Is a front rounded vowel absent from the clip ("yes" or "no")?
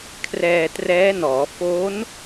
yes